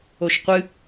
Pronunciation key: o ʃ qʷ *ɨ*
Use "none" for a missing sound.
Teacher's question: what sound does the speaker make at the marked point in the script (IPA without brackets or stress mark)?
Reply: ɨ